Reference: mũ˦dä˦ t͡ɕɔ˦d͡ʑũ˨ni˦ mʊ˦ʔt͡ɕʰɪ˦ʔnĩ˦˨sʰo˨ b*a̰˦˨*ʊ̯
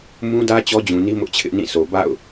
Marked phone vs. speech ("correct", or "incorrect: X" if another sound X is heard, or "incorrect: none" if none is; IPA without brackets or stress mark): correct